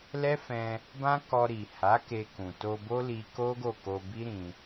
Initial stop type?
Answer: plain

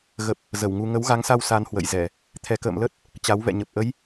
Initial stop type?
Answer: plain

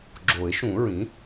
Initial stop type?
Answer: click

